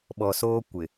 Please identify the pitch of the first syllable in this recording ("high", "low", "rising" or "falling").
low